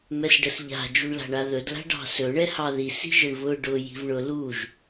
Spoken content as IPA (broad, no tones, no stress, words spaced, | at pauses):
mɛsɖəsʎa̤ d͡ʒuɳla̤ɳaðɵd la̤ɖɑ̤sɵ ɳɛhɑði si̤ʒəɳvʊ ɖʊ ji̤vɳʊ luʒ